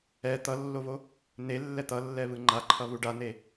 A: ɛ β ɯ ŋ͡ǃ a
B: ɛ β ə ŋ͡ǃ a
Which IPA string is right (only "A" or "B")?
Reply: A